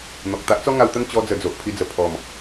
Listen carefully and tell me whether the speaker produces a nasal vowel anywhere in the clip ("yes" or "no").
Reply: no